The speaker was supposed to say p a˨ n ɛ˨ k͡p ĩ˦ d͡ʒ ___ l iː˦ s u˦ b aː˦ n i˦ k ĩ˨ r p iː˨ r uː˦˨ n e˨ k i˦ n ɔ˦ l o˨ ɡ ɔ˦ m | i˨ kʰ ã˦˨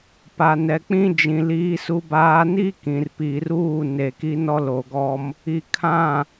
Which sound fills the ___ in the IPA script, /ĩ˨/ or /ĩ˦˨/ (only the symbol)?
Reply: ĩ˨